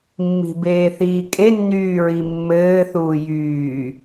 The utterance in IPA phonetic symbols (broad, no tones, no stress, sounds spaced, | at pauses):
mː i̤ b eː θ iː kʼ e nː yː ɹ i mː ɘː θ uː j yː